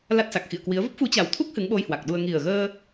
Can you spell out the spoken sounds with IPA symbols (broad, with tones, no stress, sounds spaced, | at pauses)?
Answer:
l a˦˥ t̚ s a˨˩ k̚ x ḭ˧˨ ə̯ k w i˨˦ ə̯ v ə˦˥ p̚ f u˨˦ t͡ɕ a˨˩ w t̪ʰ u˦˥ k̚ h ɨ˨˦ ŋ ɓ o˧ j h w a˨˩ k̚ ɗ u˧ ə̯ ŋ i˨˩ ə̯ ɣ əː˧